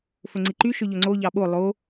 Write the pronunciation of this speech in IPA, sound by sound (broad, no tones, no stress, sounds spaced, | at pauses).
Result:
f ɵ ŋ͡ǀ i ǃ y ʃ ø ʎ ɵ ŋ͡ǀ o ʎ ɑ ɓ o lˠ o